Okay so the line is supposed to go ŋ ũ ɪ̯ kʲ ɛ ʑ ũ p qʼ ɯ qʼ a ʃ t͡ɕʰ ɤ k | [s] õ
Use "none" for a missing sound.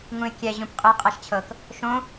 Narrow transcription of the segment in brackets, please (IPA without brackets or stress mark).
ʃ